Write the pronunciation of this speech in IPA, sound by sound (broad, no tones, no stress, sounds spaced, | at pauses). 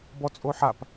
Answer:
b ɔ t͡sʼ o ħ a p